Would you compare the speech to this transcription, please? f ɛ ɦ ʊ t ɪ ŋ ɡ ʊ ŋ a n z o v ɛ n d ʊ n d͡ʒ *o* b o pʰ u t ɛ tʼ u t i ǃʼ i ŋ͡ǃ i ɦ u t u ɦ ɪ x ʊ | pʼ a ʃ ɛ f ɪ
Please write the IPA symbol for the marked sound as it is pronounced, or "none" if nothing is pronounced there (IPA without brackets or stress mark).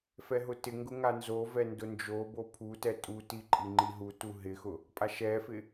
o